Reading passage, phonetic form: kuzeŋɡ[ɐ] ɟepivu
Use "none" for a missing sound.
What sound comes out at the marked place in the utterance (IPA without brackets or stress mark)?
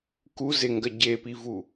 ɐ